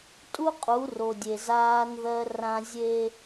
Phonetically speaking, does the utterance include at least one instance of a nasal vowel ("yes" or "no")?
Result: yes